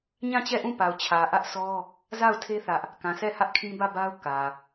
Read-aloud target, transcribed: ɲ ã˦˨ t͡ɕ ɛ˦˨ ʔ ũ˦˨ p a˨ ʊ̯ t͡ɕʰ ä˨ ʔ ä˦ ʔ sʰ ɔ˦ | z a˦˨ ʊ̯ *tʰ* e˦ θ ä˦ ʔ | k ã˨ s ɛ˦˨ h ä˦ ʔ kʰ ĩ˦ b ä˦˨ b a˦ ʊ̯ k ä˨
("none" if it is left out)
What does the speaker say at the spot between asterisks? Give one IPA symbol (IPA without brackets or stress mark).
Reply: tʰ